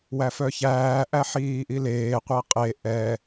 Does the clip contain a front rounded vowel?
yes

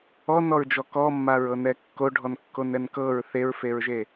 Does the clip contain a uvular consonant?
no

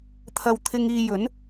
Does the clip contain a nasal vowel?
no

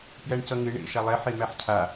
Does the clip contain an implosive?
no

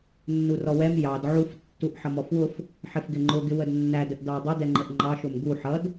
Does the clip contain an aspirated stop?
no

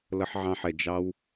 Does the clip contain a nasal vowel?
yes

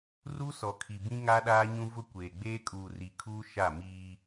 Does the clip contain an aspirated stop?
yes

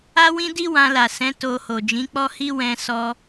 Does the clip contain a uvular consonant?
no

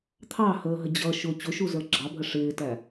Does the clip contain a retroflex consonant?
yes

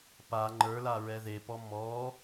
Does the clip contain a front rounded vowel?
no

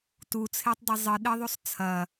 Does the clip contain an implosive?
yes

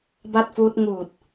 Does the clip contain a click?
no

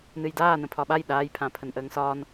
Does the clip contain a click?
no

